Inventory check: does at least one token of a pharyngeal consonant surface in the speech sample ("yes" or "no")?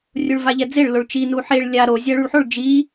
yes